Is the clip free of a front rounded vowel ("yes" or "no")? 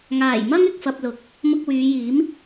no